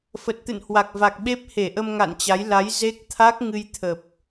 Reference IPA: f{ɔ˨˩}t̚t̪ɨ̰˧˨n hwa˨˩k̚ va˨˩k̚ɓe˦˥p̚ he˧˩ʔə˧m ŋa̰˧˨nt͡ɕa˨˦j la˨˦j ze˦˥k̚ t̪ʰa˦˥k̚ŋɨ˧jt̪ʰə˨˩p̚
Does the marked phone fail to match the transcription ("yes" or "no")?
yes